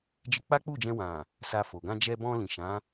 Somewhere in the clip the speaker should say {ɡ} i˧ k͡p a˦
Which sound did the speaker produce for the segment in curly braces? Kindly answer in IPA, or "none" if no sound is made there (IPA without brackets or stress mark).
d͡ʒ